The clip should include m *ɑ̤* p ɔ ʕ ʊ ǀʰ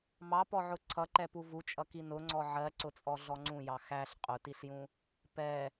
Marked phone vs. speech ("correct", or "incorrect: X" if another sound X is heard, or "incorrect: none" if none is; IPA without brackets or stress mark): incorrect: ɑ